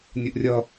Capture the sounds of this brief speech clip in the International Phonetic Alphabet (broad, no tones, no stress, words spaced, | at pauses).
nʲuʔrʲʌ